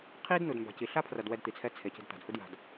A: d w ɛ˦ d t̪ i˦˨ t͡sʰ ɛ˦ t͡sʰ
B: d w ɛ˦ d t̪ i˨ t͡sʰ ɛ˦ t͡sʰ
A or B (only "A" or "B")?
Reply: B